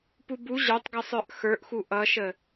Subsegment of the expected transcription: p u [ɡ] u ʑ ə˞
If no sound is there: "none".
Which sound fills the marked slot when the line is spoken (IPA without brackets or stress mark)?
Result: b